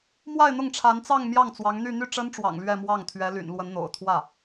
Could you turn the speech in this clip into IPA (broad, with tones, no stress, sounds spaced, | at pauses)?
m w a˥˧ ɪ̯ n̪ ʊ˥˩ ŋ ʈ͡ʂʰ a˧˥ n t͡s ɑ˥˧ ŋ m j ɑ˥˩ ŋ t͡s w ɑ˧˥ ŋ n̪ y˥˧ n̪ y˥˩ ʈ͡ʂ ə˥ n ʈ͡ʂ w ɑ̰˨˩ ŋ l ɥ ɛ˥˧ m w ɑ˥˩ ŋ t̪ʰ ɥ ɛ˧˥ l y̰˨˩ n l w ə˧˥ n n̪ o̰˨˩ ʊ̯ t̪ʰ w ä˥˩